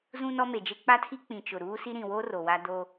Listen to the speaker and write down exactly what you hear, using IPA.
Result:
z ũ˦ n ɔ˦ m e˨ d͡ʒ e˦ k͡p a˦ tʰ i˦ k͡p ĩ˨ t͡ʃ ʊ˨ ɾ uː˦ s i˦ ɾ ĩ˨ w o˦ r o˨ w a˦ d o˦

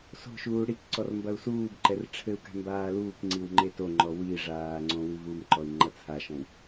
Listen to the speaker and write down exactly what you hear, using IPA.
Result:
s o̤ ʃ uː ɽ i k ǀ ɔ r m b ɐ u̯ s uː b ǃ ɛ r ʈ͡ʂʰ ɘ u̯ k a̤ m b aː l uː k ŋ͡ǀ i w ŋ͡ǃ e t o ŋ͡ǃ ɔ w i ʐ aː ŋ͡ǀ õ w ɨ v u m ǃ ɔ i̯ ŋ͡ǃ ɐ t͡sʰ a ʃ ɔ̃ w

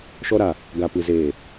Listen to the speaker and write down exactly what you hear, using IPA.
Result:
ʃ ɔ˦ ɾ a˨ | ɡ a˨ p ɨ˨ z eː˨

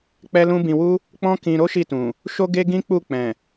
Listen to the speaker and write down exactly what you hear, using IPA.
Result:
k͡p ɛ˦ l ũ˦ b ĩ˧ w u˦ | k͡p ɔ̃˦ k ĩ˧ ɾ o˦ ʃ i˦˨ t ũ˨ | ʃ o˦ ɡ e˦ ɡ ĩ˦ k͡p u˦˨ k͡p ɛ̃˨

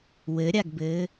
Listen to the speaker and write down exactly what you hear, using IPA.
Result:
w ɘ ɾʲ a ɡ b ɘː

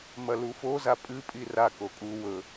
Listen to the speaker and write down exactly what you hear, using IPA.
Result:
m ɐ l u f o z a pʼ ɨ pʼ i r a k o kʼ u w ɵ

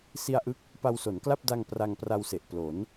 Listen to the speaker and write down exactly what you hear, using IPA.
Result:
s i˧ a̯ ʔ ɯ˦˥ k̚ | p a˧ w s o˩˦ n k l a˥˩ p̚ d a˧ ŋ p r a˧ ŋ p r a˧ w s e˨˩ ʔ p l o˩˦ n

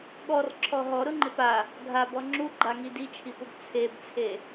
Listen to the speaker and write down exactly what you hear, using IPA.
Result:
ɠ ɔ r ǁʰ ɔ ɦ ɔ ɾ ʊ ŋ͡ǃ ɪ p a | ɡʱ a b ɔ ŋ͡ǁ u ɡ͡ǃ a ŋ i d i t͡ʃʰ i p ʊ b t͡sʰ e b t͡sʰ e

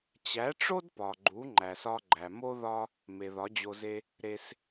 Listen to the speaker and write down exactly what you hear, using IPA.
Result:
t͡ɕ æ˨˦ ʈ͡ʂ o˦ d p ɒ˨ ɡ͡ǃ u˨˦ ŋ͡ǃ æ˨ s ɒ˧ ɡ͡ǃ æ˨ m o˦ ð ɒ˦ | m e˨ ð ɒ˨˦ d͡ʑ o˧ z e˦ | ɾ e˦ s

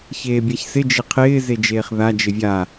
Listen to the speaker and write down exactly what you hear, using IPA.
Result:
ç eː bʲ a ç s ɪ d͡ʒ ɪ qʰ ɪː z e d͡ʒ eː χ ð a d͡ʒ ɪ vʲ a

